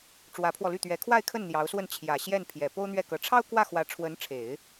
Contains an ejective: no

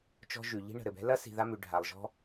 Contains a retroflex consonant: yes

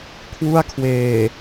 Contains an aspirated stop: yes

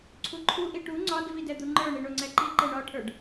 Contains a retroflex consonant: yes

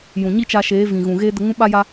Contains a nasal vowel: yes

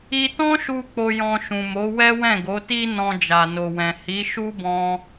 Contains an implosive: no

